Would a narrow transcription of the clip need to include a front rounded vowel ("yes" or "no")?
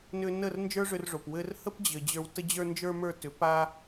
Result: yes